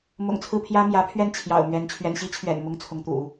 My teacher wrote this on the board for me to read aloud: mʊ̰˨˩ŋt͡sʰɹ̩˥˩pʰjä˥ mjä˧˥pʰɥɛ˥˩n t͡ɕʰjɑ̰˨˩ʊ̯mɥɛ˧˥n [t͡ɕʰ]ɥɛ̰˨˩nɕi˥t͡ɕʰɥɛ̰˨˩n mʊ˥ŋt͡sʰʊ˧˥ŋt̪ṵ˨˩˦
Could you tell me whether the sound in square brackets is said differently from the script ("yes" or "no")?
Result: no